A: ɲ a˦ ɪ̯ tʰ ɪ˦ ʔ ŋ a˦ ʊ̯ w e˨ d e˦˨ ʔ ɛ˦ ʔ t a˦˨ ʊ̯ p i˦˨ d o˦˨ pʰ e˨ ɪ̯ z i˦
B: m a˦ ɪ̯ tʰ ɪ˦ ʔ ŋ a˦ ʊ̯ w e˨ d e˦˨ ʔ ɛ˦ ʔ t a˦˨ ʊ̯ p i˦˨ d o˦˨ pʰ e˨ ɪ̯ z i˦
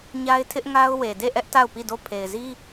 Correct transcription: A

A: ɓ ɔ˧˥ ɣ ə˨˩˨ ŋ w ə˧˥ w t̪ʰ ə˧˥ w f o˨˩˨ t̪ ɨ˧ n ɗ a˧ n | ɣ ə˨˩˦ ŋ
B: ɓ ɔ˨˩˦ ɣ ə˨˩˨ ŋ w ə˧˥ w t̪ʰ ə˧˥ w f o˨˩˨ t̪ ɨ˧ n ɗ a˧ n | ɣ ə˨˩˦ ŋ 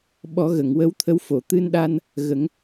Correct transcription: B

